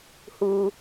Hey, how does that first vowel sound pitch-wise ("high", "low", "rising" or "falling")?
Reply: high